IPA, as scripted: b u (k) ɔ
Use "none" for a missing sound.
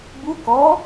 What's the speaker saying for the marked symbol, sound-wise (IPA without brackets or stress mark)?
k